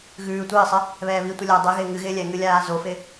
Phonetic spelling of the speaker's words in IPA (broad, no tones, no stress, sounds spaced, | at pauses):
ɣ ʉː tʷ ɪː sˤ ɪ | β ɛː β i tʷ ɨ lʲ a dˤ ɛ ɣ ɪː ŋ ɨ ɣ ɪː lʲ ɛ ŋ ɨ lʲ aː z o f ɪ